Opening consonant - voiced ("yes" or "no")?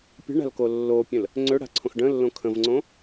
no